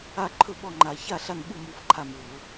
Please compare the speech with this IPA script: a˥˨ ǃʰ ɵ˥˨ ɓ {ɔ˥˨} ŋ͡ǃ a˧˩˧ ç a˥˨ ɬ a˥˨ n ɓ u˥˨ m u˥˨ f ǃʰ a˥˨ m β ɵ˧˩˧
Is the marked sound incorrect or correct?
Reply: correct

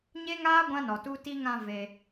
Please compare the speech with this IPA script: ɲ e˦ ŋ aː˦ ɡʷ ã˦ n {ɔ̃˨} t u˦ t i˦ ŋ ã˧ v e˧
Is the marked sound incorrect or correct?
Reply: incorrect: ɔ˨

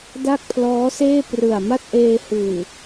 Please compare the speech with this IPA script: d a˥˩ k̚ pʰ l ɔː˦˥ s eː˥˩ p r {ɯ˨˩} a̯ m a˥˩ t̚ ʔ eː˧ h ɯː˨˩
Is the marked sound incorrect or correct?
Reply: correct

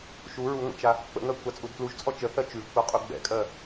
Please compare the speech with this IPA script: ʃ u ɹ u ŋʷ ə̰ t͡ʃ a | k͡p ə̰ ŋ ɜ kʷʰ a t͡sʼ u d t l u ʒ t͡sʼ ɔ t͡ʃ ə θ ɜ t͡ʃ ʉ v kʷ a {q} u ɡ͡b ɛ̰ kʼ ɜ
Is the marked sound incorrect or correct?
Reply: incorrect: qʼ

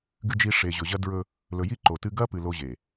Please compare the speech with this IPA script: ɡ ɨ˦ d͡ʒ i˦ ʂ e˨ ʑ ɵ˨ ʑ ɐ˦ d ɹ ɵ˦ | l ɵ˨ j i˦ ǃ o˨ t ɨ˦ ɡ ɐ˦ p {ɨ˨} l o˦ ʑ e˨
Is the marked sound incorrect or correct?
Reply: correct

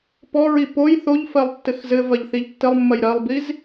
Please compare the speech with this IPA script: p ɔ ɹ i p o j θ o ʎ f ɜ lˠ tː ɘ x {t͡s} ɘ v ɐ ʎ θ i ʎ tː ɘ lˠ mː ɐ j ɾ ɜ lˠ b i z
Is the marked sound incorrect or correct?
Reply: incorrect: z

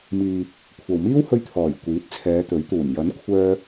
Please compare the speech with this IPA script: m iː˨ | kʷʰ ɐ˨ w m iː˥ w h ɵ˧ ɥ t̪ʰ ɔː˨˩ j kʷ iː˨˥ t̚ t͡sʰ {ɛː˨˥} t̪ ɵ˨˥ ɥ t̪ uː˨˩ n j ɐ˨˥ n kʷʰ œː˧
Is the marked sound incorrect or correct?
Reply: incorrect: ɛː˨˧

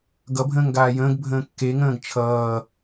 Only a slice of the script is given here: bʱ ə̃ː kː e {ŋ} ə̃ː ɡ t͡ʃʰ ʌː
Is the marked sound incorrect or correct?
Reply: correct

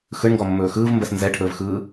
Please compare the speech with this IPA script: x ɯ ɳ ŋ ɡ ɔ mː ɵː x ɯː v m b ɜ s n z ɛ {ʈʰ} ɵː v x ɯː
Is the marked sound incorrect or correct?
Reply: correct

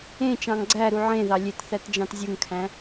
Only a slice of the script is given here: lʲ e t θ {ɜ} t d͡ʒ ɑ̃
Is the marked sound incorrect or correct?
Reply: incorrect: æ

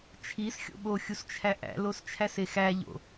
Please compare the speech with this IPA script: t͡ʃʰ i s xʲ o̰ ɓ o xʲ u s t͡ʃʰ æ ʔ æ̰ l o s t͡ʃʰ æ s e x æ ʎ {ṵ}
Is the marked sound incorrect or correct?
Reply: incorrect: o̰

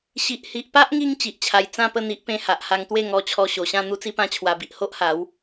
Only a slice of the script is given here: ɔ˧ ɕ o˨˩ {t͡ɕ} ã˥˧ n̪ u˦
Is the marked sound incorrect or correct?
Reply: incorrect: ɕ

